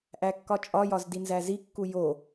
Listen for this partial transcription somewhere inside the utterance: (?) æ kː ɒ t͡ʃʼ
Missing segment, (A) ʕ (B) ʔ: B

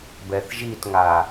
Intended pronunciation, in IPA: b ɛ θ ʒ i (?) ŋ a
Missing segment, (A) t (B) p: A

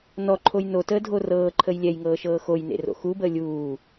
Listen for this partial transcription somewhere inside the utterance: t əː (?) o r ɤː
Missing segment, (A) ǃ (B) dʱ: B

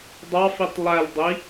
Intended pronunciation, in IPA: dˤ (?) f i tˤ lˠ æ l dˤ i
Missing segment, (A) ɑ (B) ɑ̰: A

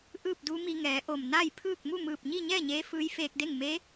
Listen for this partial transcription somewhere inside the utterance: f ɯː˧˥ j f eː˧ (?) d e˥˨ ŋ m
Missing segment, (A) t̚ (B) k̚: B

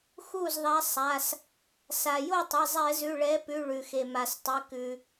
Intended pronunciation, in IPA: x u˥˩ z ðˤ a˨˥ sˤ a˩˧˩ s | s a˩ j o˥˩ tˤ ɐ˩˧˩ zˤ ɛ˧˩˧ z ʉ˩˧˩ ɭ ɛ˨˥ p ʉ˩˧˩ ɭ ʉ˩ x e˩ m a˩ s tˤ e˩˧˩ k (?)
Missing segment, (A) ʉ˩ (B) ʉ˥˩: A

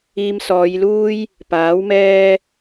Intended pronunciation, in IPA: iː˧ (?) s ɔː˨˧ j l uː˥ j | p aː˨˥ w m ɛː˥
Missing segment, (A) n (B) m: B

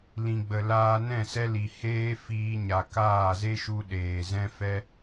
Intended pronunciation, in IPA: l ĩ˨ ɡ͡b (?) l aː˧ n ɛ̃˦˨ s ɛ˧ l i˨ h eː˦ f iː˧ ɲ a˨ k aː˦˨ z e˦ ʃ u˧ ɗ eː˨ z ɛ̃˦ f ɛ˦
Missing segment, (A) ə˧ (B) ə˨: B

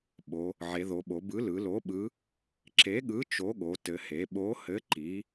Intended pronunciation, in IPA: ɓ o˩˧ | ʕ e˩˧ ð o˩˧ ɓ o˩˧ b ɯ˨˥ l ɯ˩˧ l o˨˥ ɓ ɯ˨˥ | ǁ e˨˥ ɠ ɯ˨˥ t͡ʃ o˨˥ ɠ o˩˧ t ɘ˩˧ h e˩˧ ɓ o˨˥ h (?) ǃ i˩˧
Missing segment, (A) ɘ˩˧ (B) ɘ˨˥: B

